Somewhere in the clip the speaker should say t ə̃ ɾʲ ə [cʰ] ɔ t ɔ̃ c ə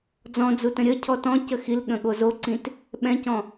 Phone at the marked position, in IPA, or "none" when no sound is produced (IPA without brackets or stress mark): cʰ